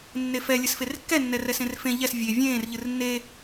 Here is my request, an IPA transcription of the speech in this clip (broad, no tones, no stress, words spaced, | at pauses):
nːefɛ lʲɘsferkːɛ nːɛrɛsẽrfẽ ʎɛs vʲe vʲẽːr ʎɨrnːe